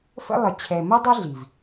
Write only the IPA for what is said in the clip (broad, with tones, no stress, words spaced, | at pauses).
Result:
fə̰˦ lˠə˨t͡ɕʰɛ˨ mʊ˦dˤɪ˦ ɮi˨v